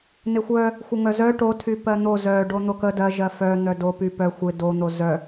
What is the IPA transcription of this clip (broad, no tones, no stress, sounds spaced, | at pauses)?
n ɪ xʷ œ | xʷ ɪ ŋ œ z œ ʈ o tʰ y p ɜ n̪ o z œ ɖ o n̪ o k ə d ɜ ʒ ɜ f œ n̪ œ d o p y p œ xʷ ɪ d o n̪ o z œ